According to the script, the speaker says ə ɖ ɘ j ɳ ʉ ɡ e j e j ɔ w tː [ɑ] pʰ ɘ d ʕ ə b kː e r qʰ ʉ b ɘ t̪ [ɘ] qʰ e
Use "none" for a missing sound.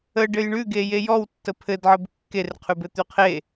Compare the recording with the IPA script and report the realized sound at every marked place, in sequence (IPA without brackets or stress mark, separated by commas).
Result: ə, ʉ